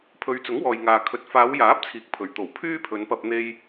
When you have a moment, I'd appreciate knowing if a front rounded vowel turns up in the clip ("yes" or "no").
yes